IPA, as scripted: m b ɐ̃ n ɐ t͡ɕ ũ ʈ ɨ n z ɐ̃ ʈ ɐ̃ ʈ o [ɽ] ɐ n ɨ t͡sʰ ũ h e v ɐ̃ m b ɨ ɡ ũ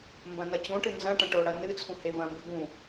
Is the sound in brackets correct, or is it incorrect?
correct